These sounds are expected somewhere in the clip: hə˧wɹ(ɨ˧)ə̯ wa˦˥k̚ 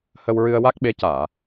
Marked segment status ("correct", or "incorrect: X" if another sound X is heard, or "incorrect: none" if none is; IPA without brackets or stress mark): correct